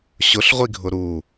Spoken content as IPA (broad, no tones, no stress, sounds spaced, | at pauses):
ɕ ʊ ɬ ʁʷ i ɡʱ ʊ ɾ u